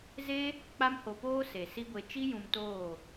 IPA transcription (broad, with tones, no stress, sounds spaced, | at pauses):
z e˦ | k͡p a˦ m h o˧ p oː˦ s e˨ s i˦ ɡʷ e˧ t͡ʃ i˦ j ũ˧ m t oː˦˨